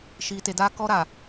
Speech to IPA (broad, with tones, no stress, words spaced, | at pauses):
ʃiː˨te˨ daː˦kɔ˦ ɾa˨